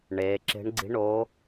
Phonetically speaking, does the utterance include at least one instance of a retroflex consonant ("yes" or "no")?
yes